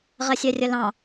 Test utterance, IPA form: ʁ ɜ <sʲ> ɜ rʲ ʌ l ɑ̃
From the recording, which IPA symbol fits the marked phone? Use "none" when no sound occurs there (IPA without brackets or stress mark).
sʲ